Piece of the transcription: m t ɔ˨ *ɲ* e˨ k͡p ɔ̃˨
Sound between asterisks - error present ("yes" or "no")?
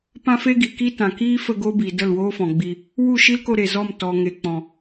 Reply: yes